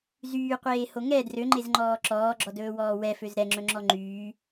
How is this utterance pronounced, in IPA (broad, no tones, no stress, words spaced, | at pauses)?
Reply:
zyːqʷeːho ŋɛ drøŋ͡ǃezŋ͡ǃɔː ǁɔːɡ͡ǁɔdɵːwɔː wɛføz ɾɛŋ͡ǁɵŋ͡ǁɔ ŋ͡ǃyː